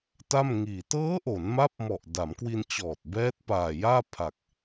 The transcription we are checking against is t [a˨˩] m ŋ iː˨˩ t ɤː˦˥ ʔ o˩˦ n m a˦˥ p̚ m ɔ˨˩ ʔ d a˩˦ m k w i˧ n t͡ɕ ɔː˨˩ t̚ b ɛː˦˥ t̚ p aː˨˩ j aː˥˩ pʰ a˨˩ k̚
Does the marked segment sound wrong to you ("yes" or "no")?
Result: yes